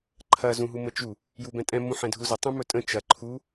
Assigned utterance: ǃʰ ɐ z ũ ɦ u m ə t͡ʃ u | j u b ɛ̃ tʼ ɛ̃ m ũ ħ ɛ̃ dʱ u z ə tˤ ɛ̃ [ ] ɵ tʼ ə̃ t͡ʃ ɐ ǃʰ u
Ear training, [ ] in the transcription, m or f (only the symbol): m